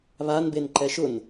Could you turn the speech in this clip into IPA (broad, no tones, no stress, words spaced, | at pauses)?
βan benǃɛʃʊn